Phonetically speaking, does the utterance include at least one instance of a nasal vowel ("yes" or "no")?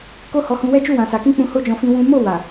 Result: yes